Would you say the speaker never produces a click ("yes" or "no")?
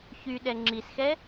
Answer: no